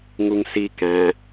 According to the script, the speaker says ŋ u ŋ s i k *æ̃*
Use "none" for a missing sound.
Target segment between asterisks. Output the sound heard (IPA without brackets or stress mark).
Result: æ̃